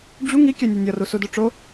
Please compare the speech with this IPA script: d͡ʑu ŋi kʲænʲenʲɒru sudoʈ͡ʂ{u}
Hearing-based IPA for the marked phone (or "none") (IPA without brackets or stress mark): o